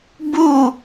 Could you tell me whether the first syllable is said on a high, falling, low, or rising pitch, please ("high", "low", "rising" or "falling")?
falling